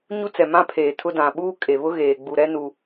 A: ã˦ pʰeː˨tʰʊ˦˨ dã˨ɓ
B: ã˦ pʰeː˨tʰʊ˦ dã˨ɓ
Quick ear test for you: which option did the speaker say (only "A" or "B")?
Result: B